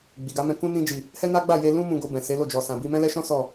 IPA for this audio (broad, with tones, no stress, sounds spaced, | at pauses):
ɡ͡b i˨ ɡ a˨˦ m ɛ̃˧ k ũ˦ n ĩ˧ d͡ʒ i˨ | h ɛ˦ n a˦ ɡ͡b a˦˨ j e˧ l ũ˦ m ũ˧ ɡ o˧ b ɛ̃˨ s e˨˦ l o˦˨ d͡ʒ ɔ˨ s ã˨ b i˧ m ɛ̃˦ l ɛ˦ ʃ ɔ̃˦ s ɔ˦˨